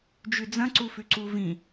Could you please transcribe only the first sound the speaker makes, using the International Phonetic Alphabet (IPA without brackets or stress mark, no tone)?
d͡ʒ